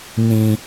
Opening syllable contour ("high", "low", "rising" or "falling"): low